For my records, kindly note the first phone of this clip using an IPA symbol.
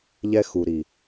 ʎ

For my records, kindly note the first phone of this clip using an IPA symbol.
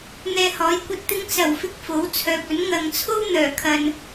n̪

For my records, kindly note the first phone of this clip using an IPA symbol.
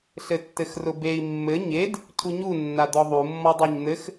ɬ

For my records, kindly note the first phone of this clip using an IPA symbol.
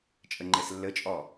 t͡ʃʼ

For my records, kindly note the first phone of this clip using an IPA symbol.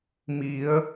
m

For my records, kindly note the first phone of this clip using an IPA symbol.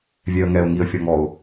vʲ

